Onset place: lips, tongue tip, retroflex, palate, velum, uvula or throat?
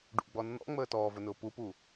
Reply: retroflex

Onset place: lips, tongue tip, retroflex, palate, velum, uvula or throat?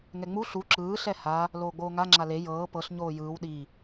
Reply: velum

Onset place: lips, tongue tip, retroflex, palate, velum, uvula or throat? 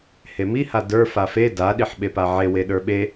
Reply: throat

